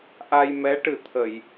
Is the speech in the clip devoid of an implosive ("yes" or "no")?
yes